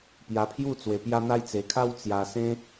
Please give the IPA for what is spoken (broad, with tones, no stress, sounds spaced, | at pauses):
p j a˧ pʰ j u˥˧ t͡s w e˧ p j a˦ n̪ a˦ j t͡s e˧ kʰ a˦ w t͡s j a˧ s ẽ˦